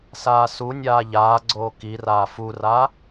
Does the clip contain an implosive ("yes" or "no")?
no